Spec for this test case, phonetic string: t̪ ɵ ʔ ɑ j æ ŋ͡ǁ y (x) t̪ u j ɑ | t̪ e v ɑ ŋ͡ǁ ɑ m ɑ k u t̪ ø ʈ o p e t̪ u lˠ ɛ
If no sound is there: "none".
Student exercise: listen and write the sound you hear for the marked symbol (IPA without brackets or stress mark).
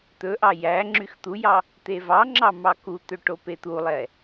x